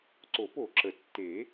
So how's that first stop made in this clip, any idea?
click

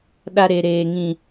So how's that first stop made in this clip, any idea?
implosive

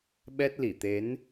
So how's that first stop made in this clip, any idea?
implosive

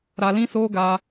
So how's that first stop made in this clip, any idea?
plain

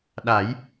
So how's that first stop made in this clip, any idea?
implosive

